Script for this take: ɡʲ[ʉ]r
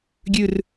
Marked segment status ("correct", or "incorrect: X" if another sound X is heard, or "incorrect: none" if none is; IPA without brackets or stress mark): correct